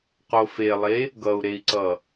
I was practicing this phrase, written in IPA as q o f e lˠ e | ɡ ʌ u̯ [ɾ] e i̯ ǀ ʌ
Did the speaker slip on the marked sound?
no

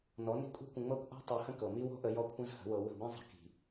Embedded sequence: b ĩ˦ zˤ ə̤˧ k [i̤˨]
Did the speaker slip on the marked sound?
no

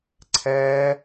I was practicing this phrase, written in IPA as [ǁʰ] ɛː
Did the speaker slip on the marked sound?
yes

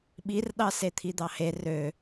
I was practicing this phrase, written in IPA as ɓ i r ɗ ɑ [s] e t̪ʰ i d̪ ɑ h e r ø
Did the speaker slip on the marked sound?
no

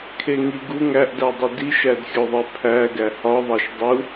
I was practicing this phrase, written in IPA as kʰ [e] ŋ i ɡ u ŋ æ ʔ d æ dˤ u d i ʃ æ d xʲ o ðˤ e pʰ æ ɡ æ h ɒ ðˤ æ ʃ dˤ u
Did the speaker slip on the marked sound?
no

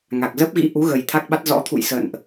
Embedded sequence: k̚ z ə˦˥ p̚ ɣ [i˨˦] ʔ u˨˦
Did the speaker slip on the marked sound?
yes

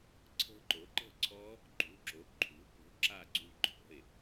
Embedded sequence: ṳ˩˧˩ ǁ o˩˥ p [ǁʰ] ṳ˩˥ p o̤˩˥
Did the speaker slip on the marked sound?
yes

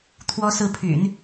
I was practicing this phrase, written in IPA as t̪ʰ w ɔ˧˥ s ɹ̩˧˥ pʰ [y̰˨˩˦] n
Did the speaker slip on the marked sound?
no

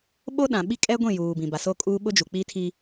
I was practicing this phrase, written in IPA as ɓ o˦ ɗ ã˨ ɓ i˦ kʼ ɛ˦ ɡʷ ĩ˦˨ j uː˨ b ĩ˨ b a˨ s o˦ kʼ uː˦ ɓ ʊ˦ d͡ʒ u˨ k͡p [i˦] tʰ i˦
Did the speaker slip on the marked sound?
no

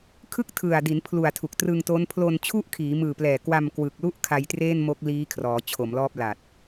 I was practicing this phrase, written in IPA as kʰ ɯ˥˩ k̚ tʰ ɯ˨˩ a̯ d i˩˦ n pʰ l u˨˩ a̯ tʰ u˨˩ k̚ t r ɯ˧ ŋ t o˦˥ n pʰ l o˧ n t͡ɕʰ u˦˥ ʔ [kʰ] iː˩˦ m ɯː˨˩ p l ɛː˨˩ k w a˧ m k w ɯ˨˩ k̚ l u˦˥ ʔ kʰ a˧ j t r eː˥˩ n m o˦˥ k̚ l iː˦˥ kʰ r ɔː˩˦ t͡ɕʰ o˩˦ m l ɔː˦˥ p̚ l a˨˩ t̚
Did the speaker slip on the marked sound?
no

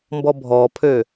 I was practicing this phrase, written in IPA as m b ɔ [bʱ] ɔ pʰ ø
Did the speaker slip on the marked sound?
no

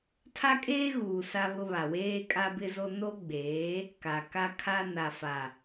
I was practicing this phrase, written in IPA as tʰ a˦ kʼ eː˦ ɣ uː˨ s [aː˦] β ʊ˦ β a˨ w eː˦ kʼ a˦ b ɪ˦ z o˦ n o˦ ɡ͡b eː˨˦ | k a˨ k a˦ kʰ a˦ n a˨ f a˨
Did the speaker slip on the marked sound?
yes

